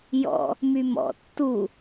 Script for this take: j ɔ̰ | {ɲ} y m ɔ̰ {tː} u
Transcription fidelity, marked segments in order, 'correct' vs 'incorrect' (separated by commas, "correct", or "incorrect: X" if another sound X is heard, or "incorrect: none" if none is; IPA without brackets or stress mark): incorrect: m, correct